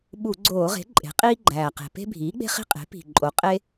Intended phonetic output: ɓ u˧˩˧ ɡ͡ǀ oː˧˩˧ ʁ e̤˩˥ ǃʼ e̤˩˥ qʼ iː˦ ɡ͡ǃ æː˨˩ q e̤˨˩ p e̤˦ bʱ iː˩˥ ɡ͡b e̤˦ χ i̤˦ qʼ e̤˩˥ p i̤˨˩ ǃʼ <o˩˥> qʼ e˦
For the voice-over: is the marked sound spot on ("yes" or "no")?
yes